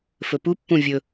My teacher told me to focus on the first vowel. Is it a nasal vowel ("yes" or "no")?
no